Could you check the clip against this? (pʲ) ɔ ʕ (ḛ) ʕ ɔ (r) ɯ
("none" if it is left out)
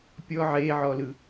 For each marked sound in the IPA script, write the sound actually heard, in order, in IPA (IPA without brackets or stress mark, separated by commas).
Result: pʲ, e, l